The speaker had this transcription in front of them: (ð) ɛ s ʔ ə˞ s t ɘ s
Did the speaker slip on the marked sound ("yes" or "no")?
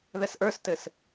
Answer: no